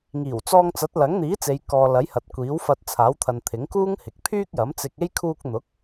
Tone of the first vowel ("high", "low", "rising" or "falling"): low